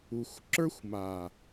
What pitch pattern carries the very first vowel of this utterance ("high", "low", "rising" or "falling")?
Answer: low